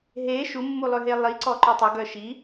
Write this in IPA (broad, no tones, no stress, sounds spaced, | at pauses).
ɦ e ʃ u mː u lˠ ø ɦ e lˠ i ǀ ɔ ǃ ɵ tˤ ɵ ɡ œ ʃ i